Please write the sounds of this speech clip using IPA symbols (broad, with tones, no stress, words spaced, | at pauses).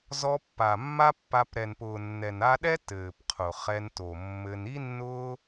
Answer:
zɔ˧pːa˨mːa˦pːa˧p ɾɛ˨npʊː˨nːɛ˨n a˧ɗɛ˦ tɘː˨pqʰʊ˨ χɛ˧nto˨mːɘ˧n i˦nːʊː˦